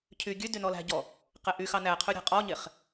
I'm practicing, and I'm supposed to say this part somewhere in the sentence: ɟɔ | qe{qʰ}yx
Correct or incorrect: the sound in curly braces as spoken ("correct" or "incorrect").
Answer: incorrect